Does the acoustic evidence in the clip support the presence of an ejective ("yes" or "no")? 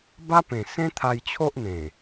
no